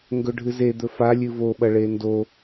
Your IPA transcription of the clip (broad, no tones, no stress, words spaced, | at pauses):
ŋɡɵɖʱɨze d̪ɵfa lʲɨvo ɓɐɭendo